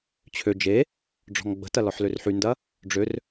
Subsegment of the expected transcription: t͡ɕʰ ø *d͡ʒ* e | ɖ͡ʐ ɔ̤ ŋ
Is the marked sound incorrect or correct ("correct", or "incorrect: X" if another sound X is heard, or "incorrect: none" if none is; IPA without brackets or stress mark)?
correct